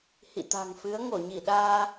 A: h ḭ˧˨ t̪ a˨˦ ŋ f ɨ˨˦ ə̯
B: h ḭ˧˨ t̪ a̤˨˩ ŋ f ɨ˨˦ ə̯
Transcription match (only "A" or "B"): B